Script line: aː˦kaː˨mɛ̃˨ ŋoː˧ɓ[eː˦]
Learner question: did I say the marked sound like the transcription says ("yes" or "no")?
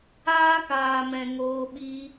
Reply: no